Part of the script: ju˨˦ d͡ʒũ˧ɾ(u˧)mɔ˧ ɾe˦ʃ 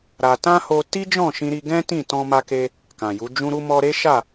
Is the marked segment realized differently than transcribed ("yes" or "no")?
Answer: no